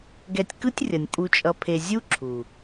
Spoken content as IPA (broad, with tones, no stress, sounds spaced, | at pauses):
ɡ ɛ˧ tʲ k ɯ˦ tʲ rʲ ʌ˨ nʲ pʼ u˧ t͡ʃʼ ʌ˧ pʰ e˧ zʲ u˦ ǁʰ u˨